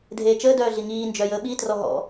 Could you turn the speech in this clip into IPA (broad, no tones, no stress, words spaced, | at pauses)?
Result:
dʱeːt͡ʃəː dœːɮiŋiː nd͡ʒœjəːɓi trɔɦɔ̰